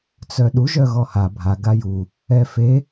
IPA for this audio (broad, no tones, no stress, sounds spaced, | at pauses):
t͡s œ ɗ u ʒ œ ɣ ɔ h a bʱ a ɡ a j u | ɛ f e